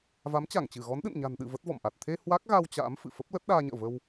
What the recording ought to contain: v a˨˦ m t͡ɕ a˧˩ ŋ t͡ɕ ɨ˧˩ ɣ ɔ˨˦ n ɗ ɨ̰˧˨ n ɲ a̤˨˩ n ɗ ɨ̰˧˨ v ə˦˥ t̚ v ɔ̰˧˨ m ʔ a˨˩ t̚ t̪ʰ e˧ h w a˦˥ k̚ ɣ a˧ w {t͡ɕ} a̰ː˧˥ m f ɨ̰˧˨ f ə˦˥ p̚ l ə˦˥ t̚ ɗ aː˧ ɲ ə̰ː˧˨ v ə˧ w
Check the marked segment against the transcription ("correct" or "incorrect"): correct